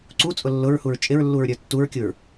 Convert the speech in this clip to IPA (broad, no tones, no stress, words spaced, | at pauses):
ǀut͡sʼʊ lːʊɹhuɹ t͡ʃʼɪɹlːuɹɾʲə˞ tːuɹkʲuɹ